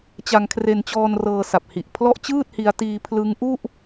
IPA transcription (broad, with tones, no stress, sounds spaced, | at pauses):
t͡ɕ a˧ ŋ kʰ r e˧ n t͡ɕ ɔː˧ n r ɤː˧ s a˨˩ p̚ h i˨˩ ʔ pʰ l ɔ˥˩ ʔ t͡ɕ ɯː˥˩ t̚ h i˧ a̯ t iː˧ pʰ l ɯ˦˥ ŋ ʔ u˥˩ ʔ